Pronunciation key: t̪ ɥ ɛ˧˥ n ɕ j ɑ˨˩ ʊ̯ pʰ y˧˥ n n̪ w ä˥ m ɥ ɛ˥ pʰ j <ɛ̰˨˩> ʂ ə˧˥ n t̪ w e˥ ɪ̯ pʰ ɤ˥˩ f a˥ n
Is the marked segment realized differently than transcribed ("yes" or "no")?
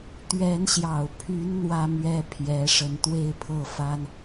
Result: yes